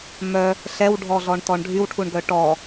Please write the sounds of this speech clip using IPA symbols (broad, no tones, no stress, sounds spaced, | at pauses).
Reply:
m œ | ɬ ɛ w ɖʱ ɔ ɮ ɔ ɳ t ɔ ɳ ɖʱ y w ʈʰ u ɳ ɡ œ ʈ ɔ